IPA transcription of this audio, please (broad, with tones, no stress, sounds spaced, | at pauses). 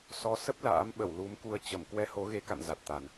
s ɔ˨˦ s ə˦˥ p̚ l a̰ː˧˥ m ɓ ə˧˩ w l u˨˦ m k u˧ ə̯ t͡ɕ ə˧˩ m k w ɛ˧ h o˨˦ ɣ e˨˦ k a̰˧˨ n z a˨˩ t̚ t̪ a˨˩ n